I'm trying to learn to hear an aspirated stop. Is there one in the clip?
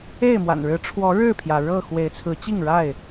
yes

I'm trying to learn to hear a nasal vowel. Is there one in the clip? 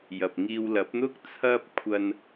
no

